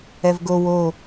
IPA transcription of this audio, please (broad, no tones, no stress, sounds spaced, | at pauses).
ɛ v ɡ o w o